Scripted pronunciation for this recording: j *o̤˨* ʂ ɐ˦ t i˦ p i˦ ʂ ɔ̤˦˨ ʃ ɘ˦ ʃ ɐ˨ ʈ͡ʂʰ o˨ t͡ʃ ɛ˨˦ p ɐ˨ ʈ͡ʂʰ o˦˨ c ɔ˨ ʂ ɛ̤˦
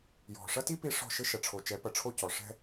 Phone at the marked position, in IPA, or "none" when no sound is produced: ɔ̤˨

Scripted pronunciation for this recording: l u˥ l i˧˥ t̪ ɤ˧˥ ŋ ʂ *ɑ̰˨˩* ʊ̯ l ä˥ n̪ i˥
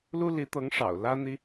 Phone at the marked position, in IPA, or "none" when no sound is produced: ɑ̰˨˩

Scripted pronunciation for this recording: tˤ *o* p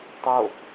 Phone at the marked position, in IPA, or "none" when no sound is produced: o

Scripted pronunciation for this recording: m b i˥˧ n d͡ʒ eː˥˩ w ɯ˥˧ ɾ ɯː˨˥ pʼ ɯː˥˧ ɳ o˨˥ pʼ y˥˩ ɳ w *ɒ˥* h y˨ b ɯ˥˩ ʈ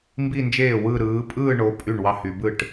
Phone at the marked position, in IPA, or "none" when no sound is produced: ɑ˥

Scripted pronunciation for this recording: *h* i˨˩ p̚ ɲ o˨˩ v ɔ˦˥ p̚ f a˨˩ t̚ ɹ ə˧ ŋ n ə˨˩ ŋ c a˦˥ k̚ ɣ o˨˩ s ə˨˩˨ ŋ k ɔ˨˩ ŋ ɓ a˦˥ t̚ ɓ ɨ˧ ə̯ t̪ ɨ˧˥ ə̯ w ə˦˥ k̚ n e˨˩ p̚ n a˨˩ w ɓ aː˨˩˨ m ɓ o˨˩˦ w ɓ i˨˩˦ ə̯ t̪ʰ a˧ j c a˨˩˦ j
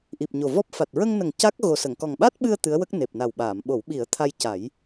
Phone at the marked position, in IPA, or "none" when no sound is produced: ʔ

